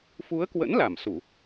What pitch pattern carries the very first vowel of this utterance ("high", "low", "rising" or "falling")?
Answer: rising